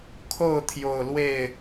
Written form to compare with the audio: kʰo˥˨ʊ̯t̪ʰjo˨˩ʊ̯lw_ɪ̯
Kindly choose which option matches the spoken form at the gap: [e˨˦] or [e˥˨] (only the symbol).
e˥˨